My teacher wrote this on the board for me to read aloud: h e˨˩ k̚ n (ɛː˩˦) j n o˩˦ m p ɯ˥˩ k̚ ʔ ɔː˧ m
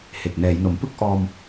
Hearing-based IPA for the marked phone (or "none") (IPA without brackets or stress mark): ɛː˩˦